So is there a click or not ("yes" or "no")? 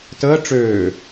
no